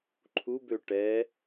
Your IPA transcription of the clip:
ǃʰubø ʈɛ

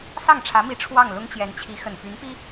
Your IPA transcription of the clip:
sɑ˥˩ŋʈ͡ʂʰä˧˥mi˧˥ ʈ͡ʂʰwɑ˥˩ŋ lʊ˥ŋt͡ɕjɛ˧˥nt͡ɕʰi˧˥ xə˨˩npy˧˥npi˥

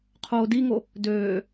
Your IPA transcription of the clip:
qʰoːdiŋo | døː

